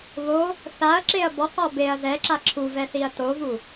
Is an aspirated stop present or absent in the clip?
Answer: present